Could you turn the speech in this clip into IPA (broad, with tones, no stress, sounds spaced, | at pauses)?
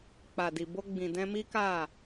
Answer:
k͡p a˨ d i˨ b o˧ ɡ͡b ĩ˨ d ɛ̃˧ m i˦ k a˦˨